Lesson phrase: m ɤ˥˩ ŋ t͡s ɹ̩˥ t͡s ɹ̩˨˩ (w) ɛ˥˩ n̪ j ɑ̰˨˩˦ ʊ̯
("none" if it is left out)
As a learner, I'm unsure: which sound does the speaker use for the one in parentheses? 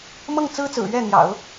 ɥ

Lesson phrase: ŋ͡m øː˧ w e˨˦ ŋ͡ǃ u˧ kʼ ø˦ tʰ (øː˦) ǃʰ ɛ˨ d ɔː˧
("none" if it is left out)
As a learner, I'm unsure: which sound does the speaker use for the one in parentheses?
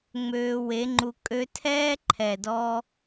ɛː˦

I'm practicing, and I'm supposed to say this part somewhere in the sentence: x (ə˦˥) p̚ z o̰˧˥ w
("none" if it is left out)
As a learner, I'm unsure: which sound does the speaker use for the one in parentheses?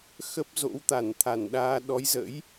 ə˦˥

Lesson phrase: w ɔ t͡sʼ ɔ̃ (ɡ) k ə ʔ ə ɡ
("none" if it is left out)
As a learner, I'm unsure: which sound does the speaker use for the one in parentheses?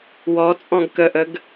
ɡ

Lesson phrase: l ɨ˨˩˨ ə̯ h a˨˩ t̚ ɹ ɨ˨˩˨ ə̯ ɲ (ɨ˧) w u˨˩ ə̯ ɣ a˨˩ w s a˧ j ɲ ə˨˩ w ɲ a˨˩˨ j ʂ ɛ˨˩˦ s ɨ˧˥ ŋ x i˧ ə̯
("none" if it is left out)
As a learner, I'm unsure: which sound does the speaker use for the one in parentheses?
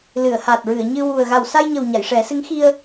ɨ˧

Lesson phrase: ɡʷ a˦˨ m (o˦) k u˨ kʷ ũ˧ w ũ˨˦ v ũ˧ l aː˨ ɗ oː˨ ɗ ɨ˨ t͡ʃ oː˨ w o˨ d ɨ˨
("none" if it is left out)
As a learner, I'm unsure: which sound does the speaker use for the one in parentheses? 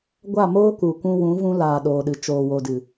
oː˦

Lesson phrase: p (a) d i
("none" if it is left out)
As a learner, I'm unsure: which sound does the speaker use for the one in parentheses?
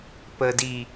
ə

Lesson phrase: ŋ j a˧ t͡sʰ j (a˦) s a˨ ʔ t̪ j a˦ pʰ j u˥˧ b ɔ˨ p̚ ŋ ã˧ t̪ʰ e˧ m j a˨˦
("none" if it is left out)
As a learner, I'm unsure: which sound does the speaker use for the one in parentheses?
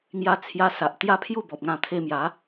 a˧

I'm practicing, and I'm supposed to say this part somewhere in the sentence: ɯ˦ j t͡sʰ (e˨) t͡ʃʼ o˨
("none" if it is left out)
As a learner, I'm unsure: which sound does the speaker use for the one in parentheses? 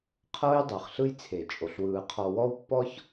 e˨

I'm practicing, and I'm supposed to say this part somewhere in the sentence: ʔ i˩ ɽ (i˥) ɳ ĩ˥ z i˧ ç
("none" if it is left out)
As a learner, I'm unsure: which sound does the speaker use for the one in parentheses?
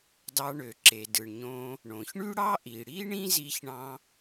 i˥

